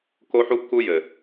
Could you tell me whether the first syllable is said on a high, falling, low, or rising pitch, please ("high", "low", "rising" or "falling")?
high